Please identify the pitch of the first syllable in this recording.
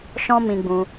high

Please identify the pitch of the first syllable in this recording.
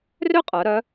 high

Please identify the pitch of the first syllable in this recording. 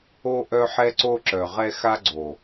high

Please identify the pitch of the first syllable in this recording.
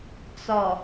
low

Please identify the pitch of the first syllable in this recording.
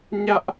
high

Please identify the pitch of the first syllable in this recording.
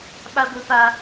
high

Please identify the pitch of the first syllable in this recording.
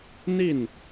falling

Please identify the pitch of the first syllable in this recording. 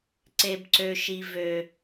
low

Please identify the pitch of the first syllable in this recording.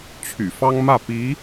low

